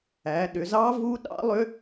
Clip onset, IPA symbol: æ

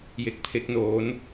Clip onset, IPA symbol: j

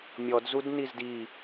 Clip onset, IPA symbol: mʲ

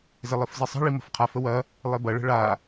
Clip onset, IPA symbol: z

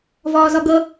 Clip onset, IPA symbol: v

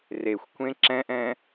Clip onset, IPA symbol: r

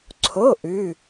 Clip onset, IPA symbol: ǀʰ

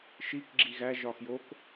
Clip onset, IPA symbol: ʃ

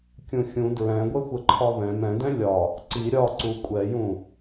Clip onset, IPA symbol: kʲ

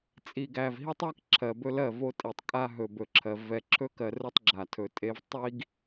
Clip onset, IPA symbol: t͡sʼ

